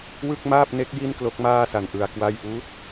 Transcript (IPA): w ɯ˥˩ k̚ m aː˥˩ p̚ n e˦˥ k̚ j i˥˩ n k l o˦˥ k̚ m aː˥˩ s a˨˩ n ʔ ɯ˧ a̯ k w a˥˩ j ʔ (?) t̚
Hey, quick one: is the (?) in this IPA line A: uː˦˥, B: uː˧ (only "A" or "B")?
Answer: A